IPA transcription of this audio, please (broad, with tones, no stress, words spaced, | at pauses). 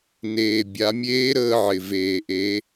neː˩ bʲa˩˧mʲeː˧˥ɾəː˧ʕɪ˩ veː˩ʔe˩˧